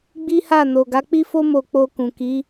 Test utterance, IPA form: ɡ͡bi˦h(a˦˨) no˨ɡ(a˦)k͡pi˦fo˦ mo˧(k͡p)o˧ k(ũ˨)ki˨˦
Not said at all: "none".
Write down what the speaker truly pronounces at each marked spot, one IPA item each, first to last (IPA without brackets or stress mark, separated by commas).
a˦˨, a˨˦, k͡p, ũ˨